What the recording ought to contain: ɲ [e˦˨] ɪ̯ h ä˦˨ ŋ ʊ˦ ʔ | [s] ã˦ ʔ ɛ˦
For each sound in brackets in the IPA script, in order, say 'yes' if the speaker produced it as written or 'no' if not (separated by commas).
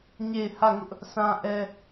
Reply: yes, yes